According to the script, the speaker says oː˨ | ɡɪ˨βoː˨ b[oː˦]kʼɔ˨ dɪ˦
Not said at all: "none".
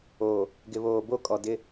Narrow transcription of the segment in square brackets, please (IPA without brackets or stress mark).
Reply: o˦